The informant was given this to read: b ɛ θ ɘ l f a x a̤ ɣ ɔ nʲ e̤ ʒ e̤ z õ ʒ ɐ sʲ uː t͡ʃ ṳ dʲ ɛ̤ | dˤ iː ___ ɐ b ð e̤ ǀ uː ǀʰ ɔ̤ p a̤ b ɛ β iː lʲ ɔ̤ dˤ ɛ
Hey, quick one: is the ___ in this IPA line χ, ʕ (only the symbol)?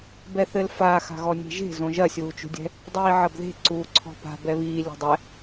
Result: ʕ